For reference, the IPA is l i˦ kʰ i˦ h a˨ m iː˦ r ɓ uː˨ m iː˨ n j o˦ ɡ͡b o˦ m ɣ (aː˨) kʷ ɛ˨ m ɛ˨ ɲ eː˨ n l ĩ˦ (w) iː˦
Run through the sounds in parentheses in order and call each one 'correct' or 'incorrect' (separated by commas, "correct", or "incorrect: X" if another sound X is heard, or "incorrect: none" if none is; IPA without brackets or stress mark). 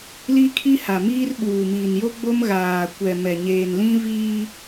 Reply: correct, incorrect: v